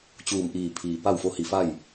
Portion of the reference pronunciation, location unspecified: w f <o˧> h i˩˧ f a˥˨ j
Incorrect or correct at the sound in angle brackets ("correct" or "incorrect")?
incorrect